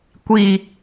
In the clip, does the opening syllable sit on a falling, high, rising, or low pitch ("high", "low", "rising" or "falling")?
low